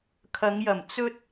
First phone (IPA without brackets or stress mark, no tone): kʰ